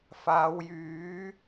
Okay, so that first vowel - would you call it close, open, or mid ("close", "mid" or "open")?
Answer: open